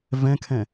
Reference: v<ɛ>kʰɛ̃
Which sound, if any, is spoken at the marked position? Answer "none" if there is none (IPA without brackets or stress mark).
ɛ̃